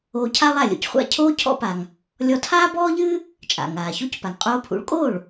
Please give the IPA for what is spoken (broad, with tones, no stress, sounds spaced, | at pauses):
oː˧ cʰ a˥ lˠ a˥˩ lʲ o̰˩ c χʷ a̰˥˩ cʰ oː˥ cʰ ɔ̰˧ p a˩ ŋ | lʲ ɔ˧ tʰ aː˥ b ɔː˥ ʎ ɨː˥ | t͡ʃʼ a̰˩ ŋ aː˩ ç o˥ c p a˩ ŋ qʼ oː˧ pʰ ṵ˩˥ ɭ kʼ oː˥˩ ɭ